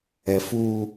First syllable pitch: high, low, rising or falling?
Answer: low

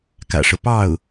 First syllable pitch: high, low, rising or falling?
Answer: low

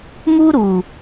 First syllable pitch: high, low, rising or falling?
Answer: high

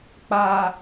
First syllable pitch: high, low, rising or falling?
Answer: low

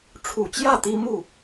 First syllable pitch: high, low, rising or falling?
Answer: low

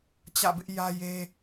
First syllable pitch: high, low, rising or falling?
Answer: falling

